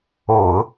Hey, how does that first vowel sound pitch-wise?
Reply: low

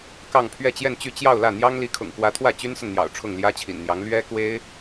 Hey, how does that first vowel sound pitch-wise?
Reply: falling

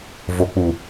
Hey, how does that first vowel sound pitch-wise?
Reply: low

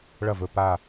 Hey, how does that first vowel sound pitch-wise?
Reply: falling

